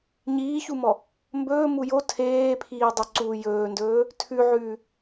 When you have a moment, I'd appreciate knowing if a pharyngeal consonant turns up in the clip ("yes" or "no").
yes